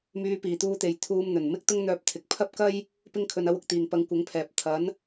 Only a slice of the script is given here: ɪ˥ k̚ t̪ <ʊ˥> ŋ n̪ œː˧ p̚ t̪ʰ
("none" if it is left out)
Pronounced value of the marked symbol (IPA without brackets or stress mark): ʊ˥